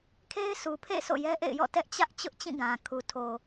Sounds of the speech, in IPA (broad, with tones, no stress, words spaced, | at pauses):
kʰe˦ɪ̯sʰu˨pʰḛ˦˨ so̰˦˨jɛ˦ʔḛ˦˨ɪ̯jɔ̰˦˨ tɛ˦ʔ t͡ɕä˦ʔ t͡ɕʊ˦ʔt͡ɕĩ˦˨ɡã˨ kʰu˨ tʰo˨